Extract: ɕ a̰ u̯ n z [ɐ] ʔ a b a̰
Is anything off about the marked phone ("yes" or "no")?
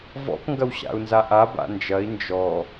yes